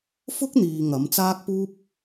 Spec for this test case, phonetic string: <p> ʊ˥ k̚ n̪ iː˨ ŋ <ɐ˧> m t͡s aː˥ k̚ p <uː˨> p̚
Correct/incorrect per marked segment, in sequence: incorrect, incorrect, incorrect

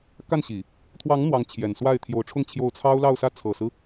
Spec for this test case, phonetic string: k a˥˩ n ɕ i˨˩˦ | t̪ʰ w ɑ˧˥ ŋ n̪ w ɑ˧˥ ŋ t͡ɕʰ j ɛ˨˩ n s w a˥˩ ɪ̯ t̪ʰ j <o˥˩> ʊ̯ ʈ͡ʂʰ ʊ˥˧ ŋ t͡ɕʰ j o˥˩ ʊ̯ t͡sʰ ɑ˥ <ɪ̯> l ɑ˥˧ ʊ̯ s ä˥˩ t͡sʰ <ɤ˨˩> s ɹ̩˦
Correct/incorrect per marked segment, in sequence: incorrect, incorrect, correct

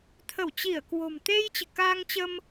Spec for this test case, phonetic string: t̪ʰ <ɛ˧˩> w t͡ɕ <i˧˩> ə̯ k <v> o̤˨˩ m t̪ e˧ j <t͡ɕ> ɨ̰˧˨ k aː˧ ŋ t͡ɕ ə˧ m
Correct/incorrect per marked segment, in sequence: incorrect, correct, incorrect, correct

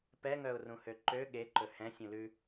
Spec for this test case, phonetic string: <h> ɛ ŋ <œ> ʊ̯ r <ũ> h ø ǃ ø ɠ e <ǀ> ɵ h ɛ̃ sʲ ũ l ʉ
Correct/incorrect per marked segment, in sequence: incorrect, correct, correct, incorrect

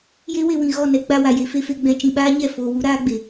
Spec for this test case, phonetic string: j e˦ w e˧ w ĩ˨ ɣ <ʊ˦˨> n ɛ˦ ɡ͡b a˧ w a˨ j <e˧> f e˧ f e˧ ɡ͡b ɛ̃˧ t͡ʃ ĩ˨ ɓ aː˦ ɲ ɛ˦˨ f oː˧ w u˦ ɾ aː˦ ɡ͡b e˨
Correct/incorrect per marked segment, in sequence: incorrect, correct

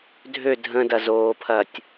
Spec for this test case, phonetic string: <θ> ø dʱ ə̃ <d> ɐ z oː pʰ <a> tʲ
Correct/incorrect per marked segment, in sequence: incorrect, correct, incorrect

